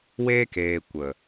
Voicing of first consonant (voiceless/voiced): voiced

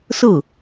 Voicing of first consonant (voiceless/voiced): voiceless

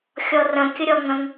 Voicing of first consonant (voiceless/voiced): voiceless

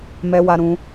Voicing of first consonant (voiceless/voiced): voiced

